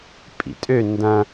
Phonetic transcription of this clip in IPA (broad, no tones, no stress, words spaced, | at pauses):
pʼḭtʼø ndɐ̃